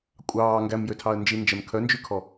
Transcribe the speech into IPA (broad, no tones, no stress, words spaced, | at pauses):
kʷʼɑː ŋɡæmjøtʰɑə̯ nd͡ʒind͡ʒɛm kʰœnd͡ʒykʰɔ